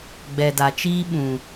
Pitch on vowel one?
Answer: low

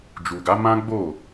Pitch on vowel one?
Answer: low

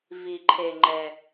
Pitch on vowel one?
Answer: low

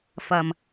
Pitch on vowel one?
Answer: low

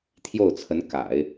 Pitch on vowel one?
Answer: falling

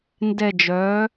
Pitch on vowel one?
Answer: falling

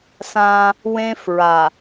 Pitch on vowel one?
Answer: high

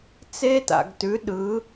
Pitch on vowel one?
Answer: high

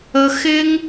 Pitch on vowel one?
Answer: high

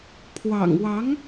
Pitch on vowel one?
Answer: low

